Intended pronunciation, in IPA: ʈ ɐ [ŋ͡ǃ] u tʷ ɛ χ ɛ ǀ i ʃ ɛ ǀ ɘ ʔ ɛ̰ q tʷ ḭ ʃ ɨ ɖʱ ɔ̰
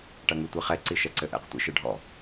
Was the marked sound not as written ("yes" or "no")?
yes